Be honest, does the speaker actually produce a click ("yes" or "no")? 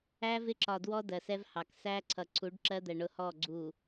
yes